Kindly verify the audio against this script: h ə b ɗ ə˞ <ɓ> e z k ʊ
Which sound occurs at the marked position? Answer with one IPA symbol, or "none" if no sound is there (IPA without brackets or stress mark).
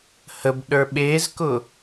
ɓ